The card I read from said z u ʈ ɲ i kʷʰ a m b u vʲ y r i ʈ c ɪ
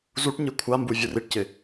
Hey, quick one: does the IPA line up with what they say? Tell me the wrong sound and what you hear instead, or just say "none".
y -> u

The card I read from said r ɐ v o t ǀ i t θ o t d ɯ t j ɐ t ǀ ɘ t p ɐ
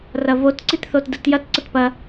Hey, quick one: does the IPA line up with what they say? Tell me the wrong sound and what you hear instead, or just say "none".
none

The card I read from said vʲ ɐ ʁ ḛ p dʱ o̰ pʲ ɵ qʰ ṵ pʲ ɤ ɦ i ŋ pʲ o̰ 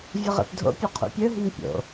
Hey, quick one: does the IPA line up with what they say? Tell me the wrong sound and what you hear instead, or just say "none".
ɤ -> ɵ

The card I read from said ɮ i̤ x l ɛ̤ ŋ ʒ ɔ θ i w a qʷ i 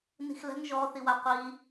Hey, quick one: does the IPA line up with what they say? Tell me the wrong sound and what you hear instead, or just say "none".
ɮ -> n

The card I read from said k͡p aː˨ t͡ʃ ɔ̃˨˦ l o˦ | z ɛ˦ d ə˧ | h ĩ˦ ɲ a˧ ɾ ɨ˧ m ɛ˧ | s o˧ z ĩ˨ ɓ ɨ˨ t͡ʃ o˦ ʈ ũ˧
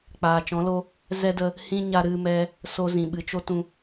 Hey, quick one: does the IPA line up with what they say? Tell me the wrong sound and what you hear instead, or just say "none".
ʈ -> t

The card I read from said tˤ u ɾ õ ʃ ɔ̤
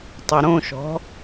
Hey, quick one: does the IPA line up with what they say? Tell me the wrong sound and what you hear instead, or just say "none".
none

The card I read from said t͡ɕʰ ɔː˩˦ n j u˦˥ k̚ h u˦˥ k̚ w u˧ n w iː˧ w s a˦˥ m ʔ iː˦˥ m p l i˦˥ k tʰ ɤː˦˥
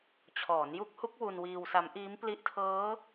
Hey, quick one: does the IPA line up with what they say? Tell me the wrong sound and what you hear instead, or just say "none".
k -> ʔ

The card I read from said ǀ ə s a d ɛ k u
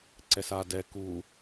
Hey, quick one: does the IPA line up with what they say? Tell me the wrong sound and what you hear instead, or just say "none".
ə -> ɛ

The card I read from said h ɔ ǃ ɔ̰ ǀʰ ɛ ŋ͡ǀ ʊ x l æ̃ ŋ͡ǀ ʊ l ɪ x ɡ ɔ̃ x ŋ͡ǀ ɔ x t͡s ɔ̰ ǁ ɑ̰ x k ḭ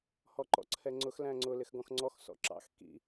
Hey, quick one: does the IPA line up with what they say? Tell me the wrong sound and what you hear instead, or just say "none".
t͡s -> s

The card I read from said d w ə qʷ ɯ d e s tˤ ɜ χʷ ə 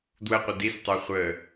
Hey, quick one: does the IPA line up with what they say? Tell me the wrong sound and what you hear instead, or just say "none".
e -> i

